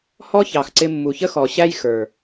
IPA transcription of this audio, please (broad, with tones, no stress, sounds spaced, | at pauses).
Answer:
h ɔ˦ ç ɑ˨ x ǀ ɪ˧ mː u˨ ç ə˦ x ɔ˨ ɕ æ˦ j x ə˞˨